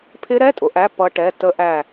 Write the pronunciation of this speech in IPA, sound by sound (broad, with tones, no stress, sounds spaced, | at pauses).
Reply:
pʰ ɪ˦˥ ɾ ɛ˧˥˧ tʼ ʊ˨˥ ʔ æ˧˥˧ p ʌ˦˥ ʈ ɛ˧˥˧ t ə˦˥ ʔ æ˦˨